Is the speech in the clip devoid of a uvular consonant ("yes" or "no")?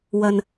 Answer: yes